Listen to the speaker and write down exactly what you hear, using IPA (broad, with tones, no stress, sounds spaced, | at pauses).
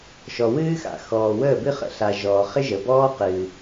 ʃ ɔ˨ w ɨː˦ x a̰˨ x ɔː˨ w əː˦˨ b ɨ˦ χ ə̰˨ ɬ a˨ ʒ ɔː˨ χ ɪ˦ ʒ ə˨ b ɔː˦ q ɨː˨